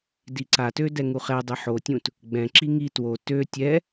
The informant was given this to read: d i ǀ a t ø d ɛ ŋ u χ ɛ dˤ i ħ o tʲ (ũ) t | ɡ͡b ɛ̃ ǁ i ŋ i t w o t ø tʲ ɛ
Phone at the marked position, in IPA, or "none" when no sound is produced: ũ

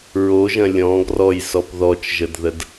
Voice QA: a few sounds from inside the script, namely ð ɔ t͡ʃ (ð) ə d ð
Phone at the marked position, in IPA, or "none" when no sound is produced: ʒ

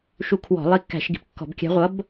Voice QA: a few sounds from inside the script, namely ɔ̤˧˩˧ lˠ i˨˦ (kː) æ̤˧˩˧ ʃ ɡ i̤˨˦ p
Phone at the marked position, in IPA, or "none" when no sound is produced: kː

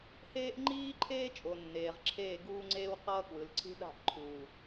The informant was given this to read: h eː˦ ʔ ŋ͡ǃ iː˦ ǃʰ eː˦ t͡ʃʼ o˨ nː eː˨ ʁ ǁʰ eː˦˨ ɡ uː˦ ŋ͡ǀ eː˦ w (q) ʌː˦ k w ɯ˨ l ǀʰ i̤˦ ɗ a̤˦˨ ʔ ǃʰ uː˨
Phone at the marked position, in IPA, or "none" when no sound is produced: q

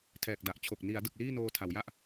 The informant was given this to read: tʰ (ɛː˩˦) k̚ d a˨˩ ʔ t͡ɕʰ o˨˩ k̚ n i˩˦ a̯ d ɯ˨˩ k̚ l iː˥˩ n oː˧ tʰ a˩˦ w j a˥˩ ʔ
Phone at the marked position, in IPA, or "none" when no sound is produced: ɛː˨˩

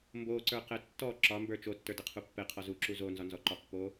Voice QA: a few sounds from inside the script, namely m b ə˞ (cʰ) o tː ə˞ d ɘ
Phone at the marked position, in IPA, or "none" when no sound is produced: t͡ʃ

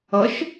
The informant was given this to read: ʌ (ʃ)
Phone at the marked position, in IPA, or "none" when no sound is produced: ʃ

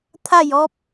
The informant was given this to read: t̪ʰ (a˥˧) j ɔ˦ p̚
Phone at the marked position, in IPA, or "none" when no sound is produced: a˥˧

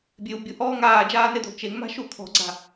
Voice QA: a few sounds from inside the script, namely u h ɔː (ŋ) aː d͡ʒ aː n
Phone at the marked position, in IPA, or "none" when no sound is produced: ŋ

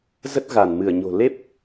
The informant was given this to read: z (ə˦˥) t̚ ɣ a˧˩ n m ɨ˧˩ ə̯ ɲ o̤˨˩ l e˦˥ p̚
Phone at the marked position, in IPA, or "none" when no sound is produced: ə˦˥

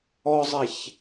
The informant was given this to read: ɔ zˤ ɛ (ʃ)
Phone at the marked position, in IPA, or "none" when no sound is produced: ç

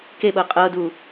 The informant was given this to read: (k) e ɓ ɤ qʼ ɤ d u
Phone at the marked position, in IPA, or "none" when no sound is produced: k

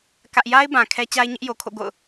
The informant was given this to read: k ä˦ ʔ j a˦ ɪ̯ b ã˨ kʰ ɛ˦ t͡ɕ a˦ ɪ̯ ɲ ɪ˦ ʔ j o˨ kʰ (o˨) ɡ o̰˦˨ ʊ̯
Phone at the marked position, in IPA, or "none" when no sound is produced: o̰˦˨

